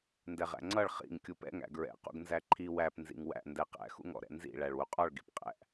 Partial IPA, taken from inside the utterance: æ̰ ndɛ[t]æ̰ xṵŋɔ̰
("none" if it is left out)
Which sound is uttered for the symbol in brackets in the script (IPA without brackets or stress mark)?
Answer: q